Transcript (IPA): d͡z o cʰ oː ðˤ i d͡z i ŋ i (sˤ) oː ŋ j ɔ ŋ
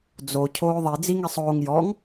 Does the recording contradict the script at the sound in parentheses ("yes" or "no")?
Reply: no